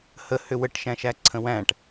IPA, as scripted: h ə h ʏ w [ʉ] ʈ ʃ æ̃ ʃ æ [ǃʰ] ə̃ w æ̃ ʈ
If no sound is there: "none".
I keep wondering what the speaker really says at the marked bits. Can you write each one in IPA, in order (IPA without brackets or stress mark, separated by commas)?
ə, ǀʰ